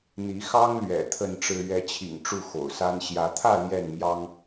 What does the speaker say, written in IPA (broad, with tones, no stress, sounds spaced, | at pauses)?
n̪ i˨˦ x ɑ˦ ŋ l ɥ ɛ̰˨˩ t̪ʰ ə˥˨ n ʈ͡ʂ ɻ̩˦ ɥ ɛ˨˦ t͡ɕʰ ḭ˨˩ ŋ ʈ͡ʂ u˥˨ x o̰˨˩ ʊ̯ s a˦ n ɕ j ä˨˦ t̪ʰ ä˥˨ l j ɛ˥˨ n m j ɑ˦ ŋ